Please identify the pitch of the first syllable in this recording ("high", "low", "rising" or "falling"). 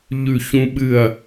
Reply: falling